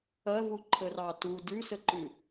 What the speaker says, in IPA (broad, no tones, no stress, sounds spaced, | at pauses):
ɐ v u ǃʰ ə r ɑ t u d ʉ s ə ǃ ʉ